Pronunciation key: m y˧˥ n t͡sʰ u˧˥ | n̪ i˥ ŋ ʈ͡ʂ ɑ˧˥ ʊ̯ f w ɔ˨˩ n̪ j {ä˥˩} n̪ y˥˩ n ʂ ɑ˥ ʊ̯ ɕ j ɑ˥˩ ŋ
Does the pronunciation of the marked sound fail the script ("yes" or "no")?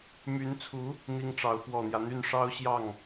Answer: yes